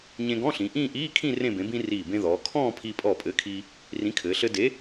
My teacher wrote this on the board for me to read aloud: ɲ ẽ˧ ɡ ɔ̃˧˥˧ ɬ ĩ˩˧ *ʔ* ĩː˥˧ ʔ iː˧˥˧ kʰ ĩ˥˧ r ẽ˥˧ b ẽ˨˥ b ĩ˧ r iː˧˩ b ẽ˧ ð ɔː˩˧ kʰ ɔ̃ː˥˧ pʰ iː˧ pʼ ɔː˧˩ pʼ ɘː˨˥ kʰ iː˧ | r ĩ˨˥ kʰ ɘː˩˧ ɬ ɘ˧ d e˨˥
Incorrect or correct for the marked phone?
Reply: correct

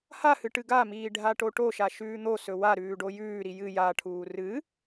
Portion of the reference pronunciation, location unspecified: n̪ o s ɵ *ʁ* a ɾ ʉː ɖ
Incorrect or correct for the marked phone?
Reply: incorrect: w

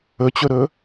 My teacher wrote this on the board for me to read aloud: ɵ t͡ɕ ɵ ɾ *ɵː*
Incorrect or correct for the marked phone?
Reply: correct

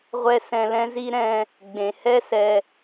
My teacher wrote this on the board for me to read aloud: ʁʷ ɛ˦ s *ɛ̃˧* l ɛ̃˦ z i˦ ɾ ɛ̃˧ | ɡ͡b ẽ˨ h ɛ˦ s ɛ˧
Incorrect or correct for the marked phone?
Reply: correct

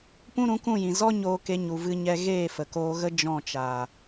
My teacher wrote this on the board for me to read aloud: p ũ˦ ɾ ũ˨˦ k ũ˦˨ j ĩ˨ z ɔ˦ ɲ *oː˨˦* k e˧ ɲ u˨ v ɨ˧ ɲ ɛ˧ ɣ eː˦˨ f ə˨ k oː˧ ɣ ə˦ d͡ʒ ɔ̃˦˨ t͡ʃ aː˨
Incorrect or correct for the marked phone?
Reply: incorrect: oː˧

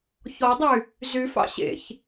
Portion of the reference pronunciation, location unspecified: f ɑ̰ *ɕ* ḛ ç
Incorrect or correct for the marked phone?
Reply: correct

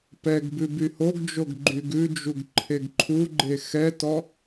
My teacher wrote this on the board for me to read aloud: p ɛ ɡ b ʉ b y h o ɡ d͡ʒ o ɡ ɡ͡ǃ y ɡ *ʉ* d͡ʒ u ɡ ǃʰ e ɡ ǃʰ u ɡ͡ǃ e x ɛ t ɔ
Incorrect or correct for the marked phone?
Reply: correct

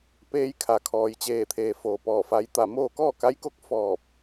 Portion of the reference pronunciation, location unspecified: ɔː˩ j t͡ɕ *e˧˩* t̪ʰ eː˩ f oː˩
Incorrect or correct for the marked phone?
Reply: incorrect: eː˧˩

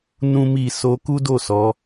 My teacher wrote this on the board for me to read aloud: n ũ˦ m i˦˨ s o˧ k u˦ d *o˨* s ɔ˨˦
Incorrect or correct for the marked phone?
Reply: incorrect: o˦˨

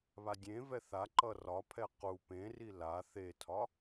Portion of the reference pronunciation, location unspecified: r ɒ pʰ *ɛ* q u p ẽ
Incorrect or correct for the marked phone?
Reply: correct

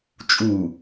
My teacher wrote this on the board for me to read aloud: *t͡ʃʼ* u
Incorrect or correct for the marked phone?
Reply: correct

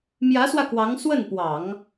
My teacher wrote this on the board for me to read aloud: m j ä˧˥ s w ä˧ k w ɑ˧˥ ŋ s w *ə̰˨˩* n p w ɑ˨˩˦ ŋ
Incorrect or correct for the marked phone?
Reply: incorrect: ə˥˩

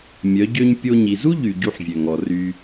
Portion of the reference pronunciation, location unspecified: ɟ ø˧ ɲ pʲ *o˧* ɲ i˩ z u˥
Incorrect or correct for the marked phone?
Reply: correct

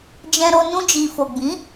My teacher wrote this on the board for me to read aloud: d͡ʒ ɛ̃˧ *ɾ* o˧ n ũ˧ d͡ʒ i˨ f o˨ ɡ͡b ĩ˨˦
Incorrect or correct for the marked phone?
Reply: correct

